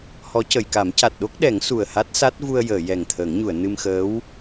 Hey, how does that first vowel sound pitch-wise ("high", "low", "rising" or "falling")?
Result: rising